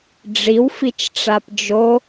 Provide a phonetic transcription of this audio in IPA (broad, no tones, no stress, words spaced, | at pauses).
ɖ͡ʐiwfit͡ʃʈ͡ʂap d͡ʒo